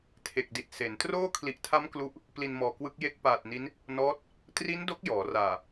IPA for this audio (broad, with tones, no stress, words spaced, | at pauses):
tʰe˨˩k̚di˨˩t̚se˩˦n troː˥˩ kʰli˨˩ʔtʰa˦˥m klu˦˥ʔ | pli˧nmɔː˨˩kwɯ˦˥k̚ je˦˥k̚paː˨˩t̚ni˦˥n | nɔː˦˥t̚ | tri˦˥n do˦˥k̚ jɔː˩˦raː˨˩